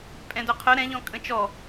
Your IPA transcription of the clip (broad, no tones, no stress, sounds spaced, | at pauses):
pʼ ɛ̃ d œ qʰ œ ɾ ɛ̃ ʎ ɔ̃ kʼ ə̃ t͡ʃ ɔ